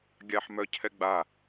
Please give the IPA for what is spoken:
ɡʲaħmœcʰɛɡ͡ba

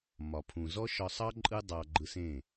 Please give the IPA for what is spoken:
mɒ˨pʰũ˨zɔ˦ ʃɒ˧sˤɑ˦ ǃʼɯ˦dˤɑ˧ ɡ͡ǃɯ˧sẽ˦˨

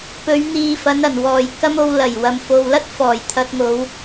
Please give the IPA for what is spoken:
pɵ˨˧ɥ n̪iː˨fɐ˨˧nɐ˨˩n wɔː˨˩j kɐ˥mo˧w lɐ˨˩j wɐ˨mfo˨wlɐ˥t̚ fɔː˨˩jt̪ʰɐ˧t̚ŋo˨˧w

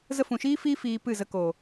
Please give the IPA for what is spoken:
zə˧fũ˨ ʃiː˦fiː˦ fiː˧pɨ˦˨zə˧ ko˨

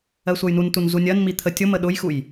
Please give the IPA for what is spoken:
ɜsʷʌjnuntun zunʲɜnmi t̪ʰə tʲʊmə ɗʊjxuj

